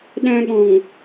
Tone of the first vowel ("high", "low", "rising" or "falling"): high